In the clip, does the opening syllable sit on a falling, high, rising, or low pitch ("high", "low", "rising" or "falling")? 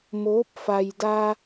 rising